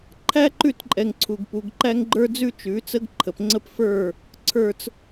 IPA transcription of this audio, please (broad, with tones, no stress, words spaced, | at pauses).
ǃʰæ˦ǃʉ˦˨tǃʼɛ˨ŋ ǀʰu˨ɡ pu˨ɡǃæ˦ŋɡ͡ǃə˞˦d͡zʉ˦ t͡ʃʉ˨˦t͡sə˦ɡǃʰə˨p ŋ͡ǀə˦pfə˞˦˨ | ǀʰə˞˦t͡s